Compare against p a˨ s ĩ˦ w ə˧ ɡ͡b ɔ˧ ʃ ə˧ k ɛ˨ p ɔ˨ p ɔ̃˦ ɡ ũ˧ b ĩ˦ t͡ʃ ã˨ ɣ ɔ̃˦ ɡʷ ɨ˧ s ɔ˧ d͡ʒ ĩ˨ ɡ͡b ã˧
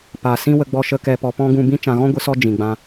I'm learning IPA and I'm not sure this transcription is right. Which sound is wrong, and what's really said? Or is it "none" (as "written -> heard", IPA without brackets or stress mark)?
none